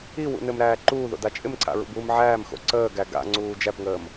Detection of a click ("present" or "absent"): present